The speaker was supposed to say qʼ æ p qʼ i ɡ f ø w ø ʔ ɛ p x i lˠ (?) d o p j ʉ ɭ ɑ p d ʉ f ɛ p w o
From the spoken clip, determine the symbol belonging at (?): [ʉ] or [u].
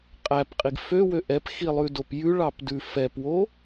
ʉ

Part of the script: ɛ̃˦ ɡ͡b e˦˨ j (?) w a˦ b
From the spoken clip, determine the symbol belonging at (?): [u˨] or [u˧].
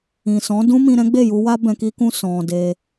u˧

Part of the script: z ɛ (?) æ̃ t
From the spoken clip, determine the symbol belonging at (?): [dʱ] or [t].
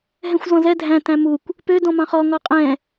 dʱ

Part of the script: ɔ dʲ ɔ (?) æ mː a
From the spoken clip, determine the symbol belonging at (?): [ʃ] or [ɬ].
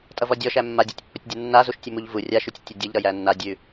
ʃ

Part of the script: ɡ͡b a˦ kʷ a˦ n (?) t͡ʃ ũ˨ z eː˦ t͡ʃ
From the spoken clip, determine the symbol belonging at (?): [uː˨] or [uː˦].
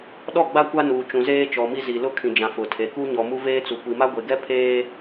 uː˨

